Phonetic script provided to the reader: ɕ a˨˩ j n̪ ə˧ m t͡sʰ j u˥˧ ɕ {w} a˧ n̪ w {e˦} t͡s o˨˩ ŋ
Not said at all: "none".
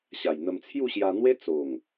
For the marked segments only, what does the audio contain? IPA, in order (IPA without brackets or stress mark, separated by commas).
j, e˦